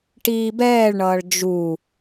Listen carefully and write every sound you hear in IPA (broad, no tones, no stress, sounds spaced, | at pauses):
ʈ iː b ɛː ɭ ɳ ʌː ɭ d͡ʒ u